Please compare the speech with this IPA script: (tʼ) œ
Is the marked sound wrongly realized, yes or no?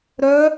yes